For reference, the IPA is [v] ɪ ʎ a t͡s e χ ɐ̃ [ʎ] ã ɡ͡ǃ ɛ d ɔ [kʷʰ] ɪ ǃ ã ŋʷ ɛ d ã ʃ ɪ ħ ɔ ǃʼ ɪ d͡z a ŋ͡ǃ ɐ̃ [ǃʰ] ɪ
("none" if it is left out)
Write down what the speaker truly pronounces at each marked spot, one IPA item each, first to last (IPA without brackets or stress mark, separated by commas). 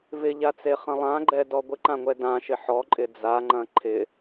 v, lˠ, ɡʷ, ǃʰ